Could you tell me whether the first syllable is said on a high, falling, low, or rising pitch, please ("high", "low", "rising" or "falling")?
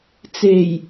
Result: low